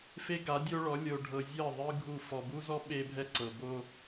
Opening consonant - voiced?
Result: no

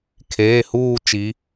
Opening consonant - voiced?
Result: no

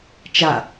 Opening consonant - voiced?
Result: no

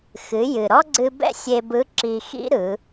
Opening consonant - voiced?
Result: no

